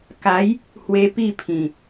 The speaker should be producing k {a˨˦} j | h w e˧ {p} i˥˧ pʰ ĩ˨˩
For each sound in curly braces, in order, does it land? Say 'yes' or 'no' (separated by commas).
yes, yes